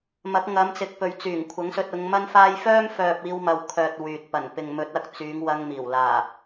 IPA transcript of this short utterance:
m ɐ˨˥ k̚ ŋ ɐ˨˧ m t͡s ɪ˨ k̚ p ɵ˨ ɥ t͡s yː˨˩ ŋ kʷʰ ɐ˨˥ ŋ s ɵ˧ t̚ ʊ˨˧ ŋ m ɐ˥ n f aː˥ j f œː˥ m f œː˨ p̚ iː˧ w m ɐ˨ w kʰ œː˨ t̚ w yː˨ t̚ p ɐ˨˩ n p ɪ˨ ŋ m ɵ˨˥ t̚ ɐ˨˥ k̚ t͡s yː˨˧ ŋ w ɐ˧ ŋ m iː˨˩ w l aː˨˩

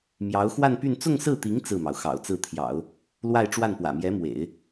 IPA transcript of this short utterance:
m j ɑ˧˥ ʊ̯ x w a˥˧ n p y˥˧ n t͡s ʊ˥˧ ŋ s ɹ̩˥˩ t̪ i˧˥ ŋ t͡s ɹ̩˥˩ m ɑ˩ ʊ̯ x ɑ̰˨˩ ʊ̯ t͡s ɹ̩˥˩ t̪ʰ j ɑ̰˨˩˦ ʊ̯ | l w a˥˧ ɪ̯ ʈ͡ʂ w a˥˩ n p w ä̰˨˩ m j ɛ˧˥ m w ḛ˨˩˦ ɪ̯

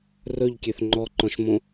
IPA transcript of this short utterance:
r ɵ ʎ kʲ ø θ ŋ͡ǃ ɔ ǃ ɔ̃ ʃ m õ

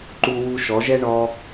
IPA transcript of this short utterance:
ǃ u˧ w u˧ ʃ ɔ˨˦ ʒ ɛ˦ ɳ ɔ˧

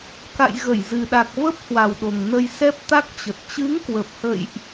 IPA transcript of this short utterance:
k a̰˧˨ j ɣ ə˧˩ j z ɨ˨˩ ɗ a˨˩ k̚ v ə˦˥ p̚ h w a˨˩ w ɗ o˨˩ ŋ n ə˧ j s ɛ˦˥ p̚ t̪ a˦˥ k̚ t͡ɕ ə˨˩ t̚ t͡ɕ ɨ˨˦ ŋ k w ə˨˩ p̚ h ə̰˧˨ j ʔ

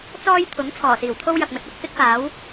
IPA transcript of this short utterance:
t͡s ɔː˥ j t̪ʰ ʊ˨˥ ŋ t͡sʰ ɔː˨˩ s iː˨˩ w t̪ʰ o˥ w j ɐ˨ k̚ m ɵ˧ t̚ ɐ˨˥ k̚ f ɪ˥ k̚ p aː˨˥ w

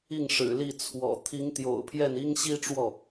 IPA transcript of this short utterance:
i˥˩ ŋ ʂ ɻ̩˨˩ l i˥˩ t͡sʰ w ɔ̰˨˩ t̪ʰ i˧˥ ŋ t̪ j o̰˨˩ ʊ̯ pʰ j ɛ˥˩ n i˥ ŋ ɕ i˥ ʈ͡ʂ w ɔ˥˩

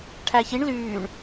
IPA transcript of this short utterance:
ʈʰ æ ç i ɳ l yː ɳ

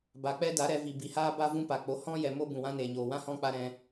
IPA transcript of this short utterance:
b a˨ k͡p ɛ˦ d a˨˦ ɾ ɛ˧ v i˨ b i˨ h aː˦ b a˦ v ũ˦ p a˨ k͡p o˨˦ h ɔ̃˦ j ɛ˨ m o˦ b ũ˨ w ã˦ n eː˨ ɲ oː˨ w ã˦ h ɔ̃˦ k͡p a˦ ɾ ɛ̃˧

